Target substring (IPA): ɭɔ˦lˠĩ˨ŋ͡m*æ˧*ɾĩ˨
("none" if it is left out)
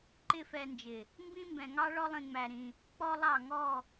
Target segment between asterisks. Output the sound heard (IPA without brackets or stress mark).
æ˨